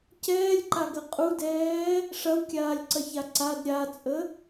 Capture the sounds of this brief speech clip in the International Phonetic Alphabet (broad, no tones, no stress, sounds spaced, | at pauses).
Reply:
c ɛː lʲ ǃ a ɡ ɐ qʼ u d ɛː | ʂ ɐ w kʲ aː lʲ ǀ ɐ ç a ǀ a d ɾʲ a t͡sʼ ə